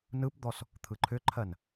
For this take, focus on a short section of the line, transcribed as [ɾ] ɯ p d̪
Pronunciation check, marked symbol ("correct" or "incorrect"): incorrect